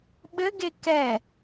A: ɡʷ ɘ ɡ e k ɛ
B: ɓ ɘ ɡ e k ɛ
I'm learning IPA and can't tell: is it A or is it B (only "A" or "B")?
B